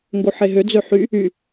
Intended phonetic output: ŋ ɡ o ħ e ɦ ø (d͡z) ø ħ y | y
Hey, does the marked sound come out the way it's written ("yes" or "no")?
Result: yes